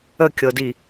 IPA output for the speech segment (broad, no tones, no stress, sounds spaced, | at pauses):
ə kʲ ɤ d i